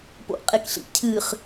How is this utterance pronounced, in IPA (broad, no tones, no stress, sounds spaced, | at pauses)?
p o̰ ʔ qʼ e k ɬ ḭ cʰ ɨ χ